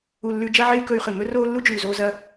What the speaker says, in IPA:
u˨ lː ʉ˧ d͡ʒ ɐ˦ ʕ e˦ y̯ k ɵ˧ y̯ χ ɨ˨ m ɵ˦ r oː˦ lː u˦ d͡ʒ ʉː˨ z oː˧ z ɐ˧

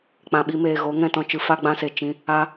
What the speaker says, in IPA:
k͡p ã˨ ɓ i˧ m eː˨ ɣ o˨˦ ŋ ɛ̃˧ t ɔ̃˨ t͡ʃ ɨ˧ f a˦ ɡ͡b ã˦ s e˨ t͡ʃ ĩ˧ | a˦

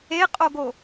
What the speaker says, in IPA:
e qʼ o ɡ o

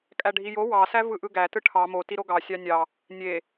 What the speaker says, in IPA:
kʼ æ ɖʱ i j o w ɑ s æ v ɯ ʔ ɯ ɡ æ t ɯ ʈʰ ɑ m o t i ɾ o ɡ ɑ sʲ ɑ nʲ ɑ | nʲ e

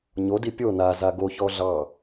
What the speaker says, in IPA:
ɲ o d i pʲ o n a z a ɡ o ç ɔ ɮ ɑ

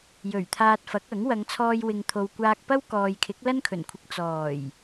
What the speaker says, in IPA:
j ɵ˨˩ ɥ t̪ʰ aː˧ t̚ f ɐ˨˥ k̚ ɐ˨˥ ŋ w ɐ˨˧ ŋ t͡sʰ ɔː˧ j w ɪ˨ ŋ t̪ʰ o˨ w kʷ aː˧ k̚ p ɐ˥ w k ɔː˨ j kʰ ɪ˨˥ k̚ l ɐ˥ n kʰ ɵ˨˩ n kʷʰ ɪ˧ k̚ t͡s ɔː˨˩ j

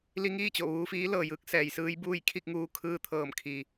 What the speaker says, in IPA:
l i˧ ŋ iː˥˨ t͡ɕ o˧˩ ʋ uː˧ f iː˧˥ l ɤː˩ j ɯː˧˥ k̚ s ɛː˩ j s ɯː˧˥ j b uː˥˨ j kʰ i˥˨ k̚ ŋ uː˧ kʰ ɯː˧ t̪ʰ ɤː˧˩ m kʰ i˩

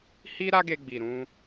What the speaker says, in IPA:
h i˦ ɾ a˦ ɡ e˧ ɡ͡b i˨ ɾ ũ˧

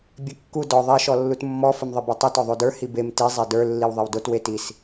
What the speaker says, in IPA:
bʲ e kː u d ɔ ðˤ i ʃ ɔ lː u t mː ɔ f ɘ m ðˤ ɘ b o tˤ i t ɔ ðˤ o d ə˞ h i b e m t i zˤ e d ə˞ lː i w ðˤ ɘ w d o t w e t i s

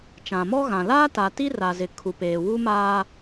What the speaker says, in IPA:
t͡ʃ ã˨ m ɔ˦ ɣ ã˨ l aː˦ t a˨ t i˦ r a˨ z ɪ˨ kʰ u˨ p eː˨ w u˦ m aː˦

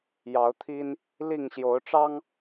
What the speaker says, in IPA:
j ɑ˨˦ ʊ̯ t̪ʰ i˦ n | l i˥˨ ŋ ɕ j o˨˦ ʊ̯ ʈ͡ʂ ɑ˦ ŋ

